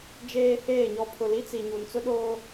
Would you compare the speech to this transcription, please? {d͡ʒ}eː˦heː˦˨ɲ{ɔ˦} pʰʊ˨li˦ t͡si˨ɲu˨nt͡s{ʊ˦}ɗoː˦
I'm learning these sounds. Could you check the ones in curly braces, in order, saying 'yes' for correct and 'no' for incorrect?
yes, yes, yes

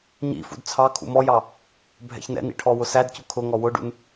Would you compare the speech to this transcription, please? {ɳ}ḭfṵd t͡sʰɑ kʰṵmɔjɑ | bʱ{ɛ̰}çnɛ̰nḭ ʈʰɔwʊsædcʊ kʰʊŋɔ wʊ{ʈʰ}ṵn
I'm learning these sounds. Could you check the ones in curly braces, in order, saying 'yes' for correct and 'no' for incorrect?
no, yes, no

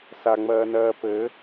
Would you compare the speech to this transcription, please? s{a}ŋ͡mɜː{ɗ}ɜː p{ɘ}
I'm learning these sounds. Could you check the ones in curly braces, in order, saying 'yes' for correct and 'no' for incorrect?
yes, no, yes

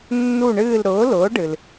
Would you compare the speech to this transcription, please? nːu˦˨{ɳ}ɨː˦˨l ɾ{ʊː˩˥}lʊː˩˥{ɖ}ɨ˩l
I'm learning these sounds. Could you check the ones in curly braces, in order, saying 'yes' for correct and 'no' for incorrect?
yes, yes, yes

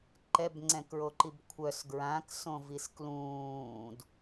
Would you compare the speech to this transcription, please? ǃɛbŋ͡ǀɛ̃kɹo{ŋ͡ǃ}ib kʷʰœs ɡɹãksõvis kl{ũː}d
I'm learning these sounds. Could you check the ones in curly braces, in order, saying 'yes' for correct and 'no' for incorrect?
no, yes

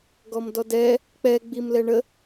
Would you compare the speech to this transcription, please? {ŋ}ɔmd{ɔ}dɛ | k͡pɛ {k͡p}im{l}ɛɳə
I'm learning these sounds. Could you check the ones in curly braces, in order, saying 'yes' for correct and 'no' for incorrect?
no, yes, no, yes

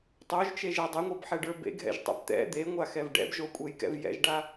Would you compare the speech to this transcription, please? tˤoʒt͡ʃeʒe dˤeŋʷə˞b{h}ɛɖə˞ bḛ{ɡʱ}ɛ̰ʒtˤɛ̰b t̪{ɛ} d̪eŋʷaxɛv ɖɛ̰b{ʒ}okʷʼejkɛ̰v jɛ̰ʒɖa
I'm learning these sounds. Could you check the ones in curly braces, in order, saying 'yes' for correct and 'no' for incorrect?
no, yes, no, yes

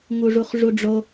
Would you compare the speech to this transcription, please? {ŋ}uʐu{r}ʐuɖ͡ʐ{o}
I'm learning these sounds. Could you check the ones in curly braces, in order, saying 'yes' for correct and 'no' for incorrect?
yes, no, yes

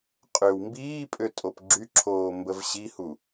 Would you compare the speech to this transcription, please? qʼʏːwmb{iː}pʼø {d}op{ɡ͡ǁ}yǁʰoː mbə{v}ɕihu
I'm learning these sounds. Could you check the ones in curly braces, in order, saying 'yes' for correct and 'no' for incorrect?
yes, no, yes, yes

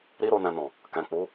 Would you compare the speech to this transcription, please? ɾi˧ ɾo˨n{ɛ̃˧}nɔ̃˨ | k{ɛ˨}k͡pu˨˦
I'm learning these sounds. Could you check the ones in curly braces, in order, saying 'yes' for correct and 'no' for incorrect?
no, no

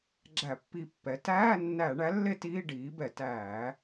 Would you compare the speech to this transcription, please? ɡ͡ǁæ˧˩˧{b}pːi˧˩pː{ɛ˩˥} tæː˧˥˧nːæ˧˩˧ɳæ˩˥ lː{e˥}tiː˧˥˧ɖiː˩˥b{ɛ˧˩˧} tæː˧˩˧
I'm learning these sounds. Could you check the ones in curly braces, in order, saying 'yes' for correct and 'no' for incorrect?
no, yes, yes, yes

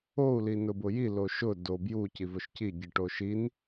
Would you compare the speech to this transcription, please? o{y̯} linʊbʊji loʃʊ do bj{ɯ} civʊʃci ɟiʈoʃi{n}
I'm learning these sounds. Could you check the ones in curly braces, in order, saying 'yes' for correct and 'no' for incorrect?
no, no, yes

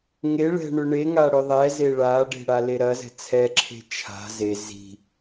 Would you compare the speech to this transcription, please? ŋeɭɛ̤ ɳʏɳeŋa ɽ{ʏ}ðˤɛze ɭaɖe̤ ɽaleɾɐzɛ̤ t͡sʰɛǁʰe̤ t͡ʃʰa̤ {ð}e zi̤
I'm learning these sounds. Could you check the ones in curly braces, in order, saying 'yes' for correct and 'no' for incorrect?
yes, no

